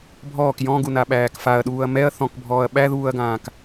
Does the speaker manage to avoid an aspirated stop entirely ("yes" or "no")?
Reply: yes